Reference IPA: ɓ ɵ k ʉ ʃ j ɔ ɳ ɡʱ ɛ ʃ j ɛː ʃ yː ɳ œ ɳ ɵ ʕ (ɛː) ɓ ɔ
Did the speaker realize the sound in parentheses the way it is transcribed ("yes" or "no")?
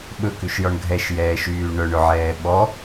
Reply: yes